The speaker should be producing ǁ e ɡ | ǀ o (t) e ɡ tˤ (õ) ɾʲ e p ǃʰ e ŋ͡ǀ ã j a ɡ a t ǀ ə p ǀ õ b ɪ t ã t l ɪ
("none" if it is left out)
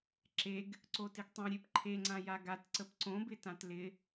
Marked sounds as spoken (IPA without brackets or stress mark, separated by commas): t, õ